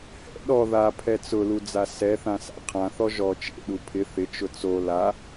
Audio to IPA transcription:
h ɛ̰ ɗ ɔ ð a pʰ ɛ t͡s ʊ l u d͡z a s ɛ θ ã s a̰ qʰ ã θ ɔ ʒ ɔ t͡ʃ ḛ ɗ u pʰ ɪ θ ɪ t͡ʃ ʊ t͡s o l a

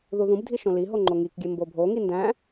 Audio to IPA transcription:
ð u ð ũ b dʱ i ʃ õ l i ɦ o ŋ͡ǃ o ŋ i k ɡʲ e m b o bʱ o ŋ i n d æ̃

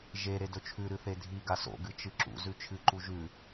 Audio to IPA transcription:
ʒ e ɾ e d ɵ t͡ʃʰ ʉ ɾ ɨ θ e dʱ i ɡ a s o̰ ɡ ɨ t͡ʃ ɨ ǁ ṵ z ʉ t͡ʃʰ ɨ ǃ u ʒ ʉ

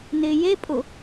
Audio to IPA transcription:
n ɪː j e pʼ ʊ

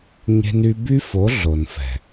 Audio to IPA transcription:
ɲ e̤˧ n y˧ b y˦ f o˨˦ ɮ o˨ n f ɛ̤˨

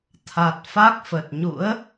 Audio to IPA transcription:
t̪ʰ a˨˩ t̚ f a˦˥ k̚ f ə˨˩ t̚ ɲ ṵ˧˥ ə̯

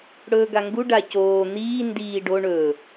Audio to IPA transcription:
ɽ ɵː ɡ a ŋ ɡ u ɖ a c oː n̪ iː n d iː ɖ o ɳ ɵ

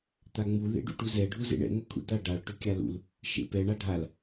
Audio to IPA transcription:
t̪ a ŋ͡m u ð ḛ ɖ ṵ ʈ u z ɛ ɖʱ u z ḛ ɳ ɛ̰ ŋʷ ɛ kʷʰ ɛ̰ d̪ a ɖ a ɭ ʈ ʏ kʲ a l ṵ l | ʃ ḛ p ɛ ɳ a ɖʱ a l

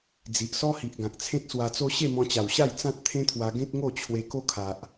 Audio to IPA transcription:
d͡z i˨ ʔ s ɔ˦ h i˨ ʔ ɡ ã˨ k̚ t͡sʰ ẽ˦ t̚ s w a˧ t͡s o˦ ɕ e˥˧ m ɔ̃˧ t͡ɕ a˨˩ w ɕ a˥˧ j t͡s ã˦ t̚ t̪ʰ ẽ˦ t̪ʰ w a˧ ɡ ẽ˦ t̚ ŋ o˥˧ t͡ɕʰ w e˧ k o˦ kʰ a˨ ʔ

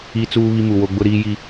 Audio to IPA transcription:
i˦ t͡s uː˦ β i˦ m u˨ w o˦ ɡ͡b ʊ˦ ɾ iː˦ j i˦

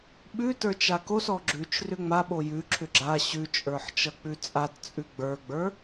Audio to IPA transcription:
ɓ ʉ t ə˞ t͡ʃ a k o s ɔ ɡ͡ǁ ʉ t͡ʃ r ʏ ŋ͡m a ɓ o j ʉ ǁʰ ʏ ɡ͡ǁ a ɕ ʉ t͡ʃʼ ə˞ ħ t͡ʃ ʌ k͡p ʉ t͡sʼ a t t͡sʼ ʉ ɡ͡b ə˞ ɡ͡b ə˞

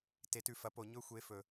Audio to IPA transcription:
t e˨˩˦ t ʉ˨ f ɐ˨˦ p o˨˩˦ ɲ ɵ˥ xʷ e˧˥˧ f ɵ˨

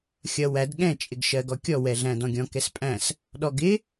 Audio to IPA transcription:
xʲ ʌ w æ d ɠ ɛ̃ t͡ʃʼ ɪ ɡ ʃ ɜ ɡ ɔ kʲ ɔ w ɛ ɮ æ̃ d ɔ̃ ɡʲ ɔ̃ k ɛ s pʼ æ̃ s | ɗ ɔ ɡ ɪ

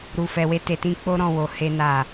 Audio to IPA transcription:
ɾ u˨ f ɛ˨ w e˧ t e˨ t ĩ˧ k͡p o˦ ɾ ɔ̃˦˨ w o˨˦ h e˦ n a˦˨

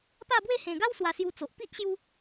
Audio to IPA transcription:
p a˥˧ b w e˥˧ h ẽ˨˩ ɡ a˦ w s w a˨˩ s j u˧ t͡s o˨ ʔ p i˦ ʔ ɕ j u˧

